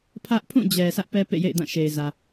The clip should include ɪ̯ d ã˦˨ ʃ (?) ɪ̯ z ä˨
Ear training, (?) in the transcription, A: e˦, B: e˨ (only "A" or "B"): B